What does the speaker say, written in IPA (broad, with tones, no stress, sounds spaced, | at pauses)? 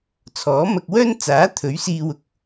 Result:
t͡sʰ ɔː˨˥ m ɐ˧ k̚ w œː˥ n t͡s aː˨˥ t̪ʰ ɵ˨˥ ɥ s iː˧ w ʊ˨˥ k̚